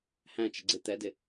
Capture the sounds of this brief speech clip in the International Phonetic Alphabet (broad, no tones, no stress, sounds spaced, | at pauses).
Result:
h æ̃ t͡ʃ ə ɡ͡ǀ ɪ t̪ ɛ d ɪ